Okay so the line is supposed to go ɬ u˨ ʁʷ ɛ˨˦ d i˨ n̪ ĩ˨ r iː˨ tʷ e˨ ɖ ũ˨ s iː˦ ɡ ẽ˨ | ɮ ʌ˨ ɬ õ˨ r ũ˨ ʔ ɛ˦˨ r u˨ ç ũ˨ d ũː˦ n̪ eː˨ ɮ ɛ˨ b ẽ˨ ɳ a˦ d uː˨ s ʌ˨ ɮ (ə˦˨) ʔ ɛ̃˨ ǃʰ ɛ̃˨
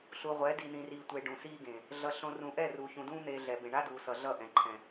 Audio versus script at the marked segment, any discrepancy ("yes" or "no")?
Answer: yes